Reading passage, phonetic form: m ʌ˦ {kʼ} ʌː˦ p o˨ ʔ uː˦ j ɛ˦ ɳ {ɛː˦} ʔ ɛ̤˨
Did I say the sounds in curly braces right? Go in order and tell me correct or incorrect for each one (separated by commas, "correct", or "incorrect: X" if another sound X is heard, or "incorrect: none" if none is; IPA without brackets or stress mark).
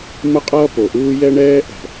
incorrect: qʼ, correct